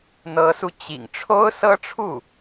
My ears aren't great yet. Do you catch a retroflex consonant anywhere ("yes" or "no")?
yes